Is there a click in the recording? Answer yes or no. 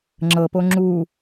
yes